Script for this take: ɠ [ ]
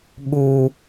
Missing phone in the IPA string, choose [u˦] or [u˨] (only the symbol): u˦